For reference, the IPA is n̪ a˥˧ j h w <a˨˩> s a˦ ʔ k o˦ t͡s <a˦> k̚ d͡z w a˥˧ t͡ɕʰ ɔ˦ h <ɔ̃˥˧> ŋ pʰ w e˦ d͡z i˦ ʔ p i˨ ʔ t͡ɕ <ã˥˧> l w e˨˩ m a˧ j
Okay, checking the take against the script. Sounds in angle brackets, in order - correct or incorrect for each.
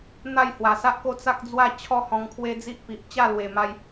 correct, correct, incorrect: ɔ̃˧, incorrect: a˥˧

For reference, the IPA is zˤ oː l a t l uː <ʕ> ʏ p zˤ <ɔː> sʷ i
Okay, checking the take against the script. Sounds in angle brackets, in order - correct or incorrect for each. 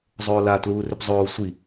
incorrect: r, incorrect: oː

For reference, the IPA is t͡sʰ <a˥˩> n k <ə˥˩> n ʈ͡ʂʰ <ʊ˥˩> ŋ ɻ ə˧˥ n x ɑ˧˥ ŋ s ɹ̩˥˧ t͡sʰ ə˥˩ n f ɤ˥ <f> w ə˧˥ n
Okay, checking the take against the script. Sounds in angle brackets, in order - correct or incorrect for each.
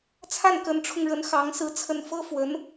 correct, incorrect: ə˧˥, incorrect: ʊ˧, correct

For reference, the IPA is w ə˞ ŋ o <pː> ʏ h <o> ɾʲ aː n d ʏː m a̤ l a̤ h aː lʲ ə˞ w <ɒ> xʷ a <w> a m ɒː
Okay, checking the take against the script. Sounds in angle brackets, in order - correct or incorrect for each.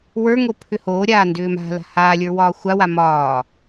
incorrect: pʰ, incorrect: oː, incorrect: ɒː, correct

